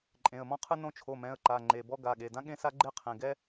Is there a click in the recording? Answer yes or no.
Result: yes